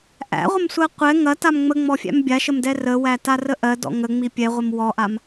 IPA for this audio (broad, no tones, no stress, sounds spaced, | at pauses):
ʔ æ̰ ʁʷ ə m sʷ ɜ qʷ ɛ ŋ ɐ t a m ŋ͡m ə ŋ͡m ɔ fʲ æ̰ m bʲ a ʃ ə m d ɛ r ə w æ t a r ə ʔ ɜ d ɔ̰ ŋ ə ŋ͡m i pʲ ɛ ʁʷ ə m w ɔ ʔ a m